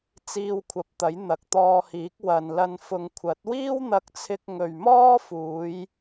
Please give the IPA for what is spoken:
t͡s iː˧ w kʷʰ ɐ˨˥ p̚ t̪ ɐ˨˥ j n̪ ɐ˨ k̚ t̪ ɔː˧ h iː˨˥ k̚ w ɐ˨ n l ɐ˧ n f ʊ˨ ŋ kʷʰ ɐ˨˥ t̚ w iː˥ w n̪ ɐ˧ k̚ t͡sʰ ɪ˧ k̚ ŋ ɵ˨ ɥ m ɔː˥ f uː˨˧ j

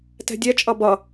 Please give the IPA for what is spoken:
t ɛ̤ dʲ ɛ t͡ʃʼ ʌ b ʌ

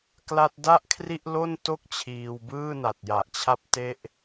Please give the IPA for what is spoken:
k l a˦˥ t̚ d a˥˩ ʔ kʰ r i˥˩ ʔ l o˥˩ n t o˥˩ k̚ t͡ɕʰ iː˧ w b ɯː˥˩ n a˨˩ t̚ j a˨˩ ʔ t͡ɕʰ a˦˥ p̚ t e˦˥ ʔ

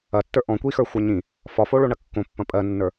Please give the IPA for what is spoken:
ɐ tː ə˞ ʔ ɔ̃ kʷ i x ə˞ xʷ ɜ ɲ ĩ | f ɒ f o ɭ o ɳ ɐ kː õ pː ɐ̃ pʼ ɜ nː ə˞

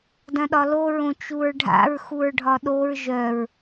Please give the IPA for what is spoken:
d ɐ̃ ɗ ɒ l o ɹ õ t͡ʃ u ɹ ɖʱ a̰ ɹ x u ɹ ɖʱ ɒ ɗ o ɹ ʒ œ ɹ

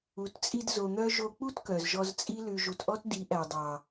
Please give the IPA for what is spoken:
u˨ t t͡sʼ i˧ d z o˧ n̪ œ˦ ʒ o˧ k͡p u˦ t k œ˨ z ʒ ɔ˧ z t͡sʼ i˦ l ʉ˧ ʒ u˧ t ʔ ɔ˦ t d i˨˦ ʔ æ˨ dˤ ɑ˨

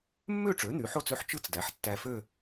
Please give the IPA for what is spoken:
mː ø˥˧ ʈ͡ʂ ø˩˥ n̪ y˩˥ ħ o˥˧ t͡s ø˥˧ ħ t͡ʃ ɯ˥˧ t͡s d æ˩˥ ħ tː æ˧ f ø˥˧

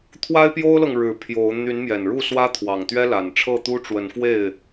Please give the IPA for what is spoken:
t̪ʰ w a˦ ɪ̯ p j o˦ ʊ̯ l ɤ˨ ŋ ɻ ɻ̩˨˦ pʰ j o˨˦ ʊ̯ n̪ y˨˦ n m j ɛ˨˩ n ɻ u˥˨ s w ä˦ t̪ʰ w ɑ˨˩ ŋ t̪ ɥ ɛ˦ l a˨˩ n ʈ͡ʂʰ ɤ˥˨ t̪ u˦ ʈ͡ʂ w ə˨˦ n f w e˥˨ ɪ̯

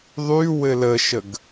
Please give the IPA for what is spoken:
ðˤ y w ɘ l ə ʃ ə ɡ

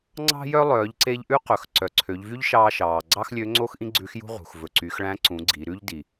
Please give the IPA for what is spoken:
ŋ͡ǀ ɑ̤˥ j œ˥ lˠ œː˩˧ ʎ ǀ e˧ ʎ ʔ ʉ˥ q ɵ˩ x ǀ œ˩ ǀʰ ø˩˧ ʎ v y˥ ʎ ʃ ɑː˧ ʃ ɑː˩ ɡ͡ǀ ɑ˥ x lʲ ø˧˥ ŋ͡ǀ o˥ x ʔ ĩ˥ ɡ͡ǀ ʉ˧˥ x j ṳ˥ ʁ ṳ˩ x v ɵ˩ ǀ y˩˧ x ɭ æ̃˧˥ ǀ ũ˩˧ ɡ͡ǀ i˩˧ ɾ ʉ˥ ʎ d i˩

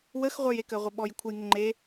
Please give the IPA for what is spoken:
w ə x ʁʷ ə˞ j e k ə ʁʷ e ɓ ɔ j kʷʰ ə j ŋ ɪ ŋ͡ǃ e

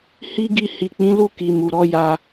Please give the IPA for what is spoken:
h i˦ ɡ i˧ h i˨ k͡p ĩ˨˦ l u˦˨ k i˨ m u˨ ɾ ɔ˧ j a˧

